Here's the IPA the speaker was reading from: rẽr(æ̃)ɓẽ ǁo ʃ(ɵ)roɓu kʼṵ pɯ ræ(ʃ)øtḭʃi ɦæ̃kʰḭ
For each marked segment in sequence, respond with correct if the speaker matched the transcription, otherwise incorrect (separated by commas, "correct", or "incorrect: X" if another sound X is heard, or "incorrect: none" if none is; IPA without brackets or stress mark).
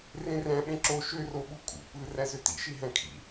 correct, incorrect: ø, incorrect: z